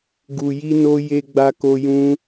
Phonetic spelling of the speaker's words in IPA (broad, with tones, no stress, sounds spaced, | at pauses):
ɡ u˨ j i˧ n o˧ j e˧ ɡ͡b a˧ k o˧ j ũ˦